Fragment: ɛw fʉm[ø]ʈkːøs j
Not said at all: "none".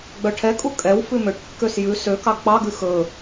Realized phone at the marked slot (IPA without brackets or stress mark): ø